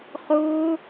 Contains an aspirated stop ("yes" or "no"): no